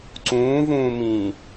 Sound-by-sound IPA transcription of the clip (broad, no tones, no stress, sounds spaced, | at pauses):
ǀ ũː v ũː m ĩː